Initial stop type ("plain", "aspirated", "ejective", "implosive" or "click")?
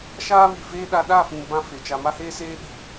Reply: implosive